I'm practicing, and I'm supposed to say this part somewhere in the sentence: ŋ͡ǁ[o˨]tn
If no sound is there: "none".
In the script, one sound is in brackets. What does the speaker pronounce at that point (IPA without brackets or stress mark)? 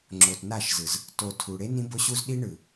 o˨